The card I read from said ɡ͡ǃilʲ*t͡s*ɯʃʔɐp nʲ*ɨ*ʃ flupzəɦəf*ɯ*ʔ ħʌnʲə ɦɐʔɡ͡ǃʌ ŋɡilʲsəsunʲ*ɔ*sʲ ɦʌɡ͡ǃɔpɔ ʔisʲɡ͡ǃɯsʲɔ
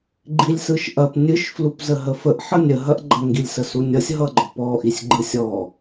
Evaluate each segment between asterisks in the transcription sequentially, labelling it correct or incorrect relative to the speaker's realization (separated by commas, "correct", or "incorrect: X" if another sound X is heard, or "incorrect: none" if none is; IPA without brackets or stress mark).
incorrect: s, correct, incorrect: ə, incorrect: ʌ